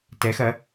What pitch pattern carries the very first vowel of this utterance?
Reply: rising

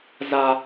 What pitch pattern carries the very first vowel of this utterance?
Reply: high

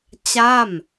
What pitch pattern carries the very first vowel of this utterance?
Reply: falling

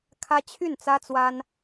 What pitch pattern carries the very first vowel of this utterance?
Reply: high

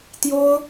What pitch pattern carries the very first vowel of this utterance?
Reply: high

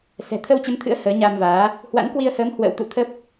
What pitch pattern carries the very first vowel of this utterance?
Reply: low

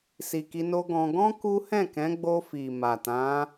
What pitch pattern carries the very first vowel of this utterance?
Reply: low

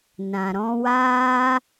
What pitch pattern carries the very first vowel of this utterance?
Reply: low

